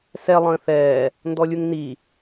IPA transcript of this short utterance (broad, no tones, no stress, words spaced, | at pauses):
sɛ lˠə̃ːθɛː | ndɔlʲuŋni